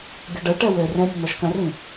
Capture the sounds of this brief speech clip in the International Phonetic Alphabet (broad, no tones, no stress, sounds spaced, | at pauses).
ɡʲ ɔ ɖ ə y̯ ʈ ɛ w ø r ɛ̃ mʲ ə n̪ ɔ ʃ k ɐ̃ r ĩ